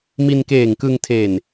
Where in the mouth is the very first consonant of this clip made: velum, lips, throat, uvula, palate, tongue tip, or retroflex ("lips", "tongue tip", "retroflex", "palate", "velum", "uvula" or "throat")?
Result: lips